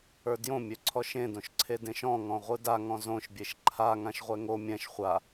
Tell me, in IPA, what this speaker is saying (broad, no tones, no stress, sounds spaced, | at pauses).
ə˞ d j õ mʲ ø ǀʰ ɔ ʃ ẽ d õ ʃ ǀʰ e d ẽ ʃ ɔ̃ ŋ ɔ̃ ʁʷ ɯ d a ŋ ɔ̃ z õ ʃ bʲ e ʃ ǃʰ a ŋ ã ʃ ʁʷ ɛ ŋ o mʲ ɛ̃ ʃ χʷ a